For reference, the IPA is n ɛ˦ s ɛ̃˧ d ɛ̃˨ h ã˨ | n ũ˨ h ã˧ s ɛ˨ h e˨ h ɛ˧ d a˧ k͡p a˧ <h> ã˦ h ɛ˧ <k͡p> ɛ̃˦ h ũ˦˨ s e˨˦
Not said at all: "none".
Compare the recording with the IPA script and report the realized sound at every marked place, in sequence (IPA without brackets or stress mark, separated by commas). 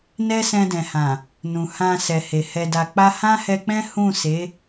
h, k͡p